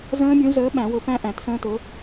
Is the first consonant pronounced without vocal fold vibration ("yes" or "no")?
no